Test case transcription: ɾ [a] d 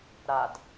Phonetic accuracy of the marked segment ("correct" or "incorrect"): correct